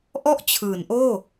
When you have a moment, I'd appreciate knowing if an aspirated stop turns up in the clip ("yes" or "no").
yes